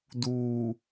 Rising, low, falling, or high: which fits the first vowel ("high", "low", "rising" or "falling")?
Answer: low